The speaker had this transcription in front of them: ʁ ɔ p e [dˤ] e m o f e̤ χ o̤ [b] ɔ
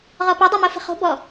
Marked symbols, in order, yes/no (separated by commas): yes, yes